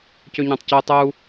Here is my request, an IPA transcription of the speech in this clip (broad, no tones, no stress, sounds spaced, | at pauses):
c ø ɲ ɑ̃ tˤ c u tˤ u